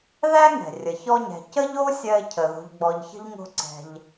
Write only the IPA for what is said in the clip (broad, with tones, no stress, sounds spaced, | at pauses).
ð æ˥ ŋ ɛ̤˩ rʲ ə˩ ç ɔ˦ ɲ ɛ̤˨ c ə˥ ʎ o˥ sʲ ɜ˦ ɪ̯ cʰ ə˩ ð o̤˨ ʎ ɡ͡b ɔ˨ ʎ ç ə̤˥ ʎ ŋ o̤˦ ǀ ɛ̤˨ ʎ